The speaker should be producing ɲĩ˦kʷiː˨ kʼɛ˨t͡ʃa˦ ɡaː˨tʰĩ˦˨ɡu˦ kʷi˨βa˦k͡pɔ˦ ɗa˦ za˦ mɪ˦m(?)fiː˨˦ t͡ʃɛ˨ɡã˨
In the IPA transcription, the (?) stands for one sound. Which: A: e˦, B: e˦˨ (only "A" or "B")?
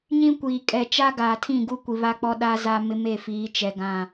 B